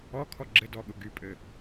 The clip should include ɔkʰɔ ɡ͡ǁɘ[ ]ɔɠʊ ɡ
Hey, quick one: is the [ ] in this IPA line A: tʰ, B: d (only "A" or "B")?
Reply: B